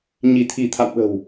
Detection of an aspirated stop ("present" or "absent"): present